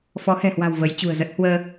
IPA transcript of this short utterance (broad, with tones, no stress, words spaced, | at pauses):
fɔ˨˦hɛ̤˨˩hwa̤˨˩w və˨˦jt͡ɕṳ˨˩ə̯zə˦˥t̚ hwəː˧